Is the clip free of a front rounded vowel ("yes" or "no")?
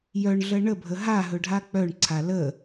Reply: no